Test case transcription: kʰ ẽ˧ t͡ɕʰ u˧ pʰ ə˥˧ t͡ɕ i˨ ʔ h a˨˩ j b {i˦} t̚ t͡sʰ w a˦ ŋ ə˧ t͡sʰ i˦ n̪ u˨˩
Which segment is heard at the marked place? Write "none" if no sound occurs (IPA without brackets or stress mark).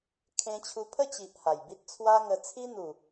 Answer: i˦